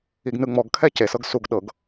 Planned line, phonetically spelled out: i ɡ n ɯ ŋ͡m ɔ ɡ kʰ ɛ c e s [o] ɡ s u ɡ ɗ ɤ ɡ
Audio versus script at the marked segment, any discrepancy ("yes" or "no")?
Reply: yes